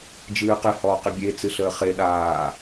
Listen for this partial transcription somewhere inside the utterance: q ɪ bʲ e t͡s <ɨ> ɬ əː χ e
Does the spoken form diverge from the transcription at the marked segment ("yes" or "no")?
no